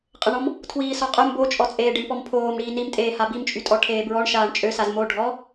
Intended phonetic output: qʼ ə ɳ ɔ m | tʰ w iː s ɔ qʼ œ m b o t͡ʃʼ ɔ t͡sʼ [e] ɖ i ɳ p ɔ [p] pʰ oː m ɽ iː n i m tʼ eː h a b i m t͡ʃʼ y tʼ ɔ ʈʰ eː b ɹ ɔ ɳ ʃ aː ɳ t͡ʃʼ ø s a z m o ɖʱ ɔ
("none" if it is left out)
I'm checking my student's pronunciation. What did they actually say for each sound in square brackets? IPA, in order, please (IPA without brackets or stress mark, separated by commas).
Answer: eː, m